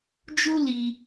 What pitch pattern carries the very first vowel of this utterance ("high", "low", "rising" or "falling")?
high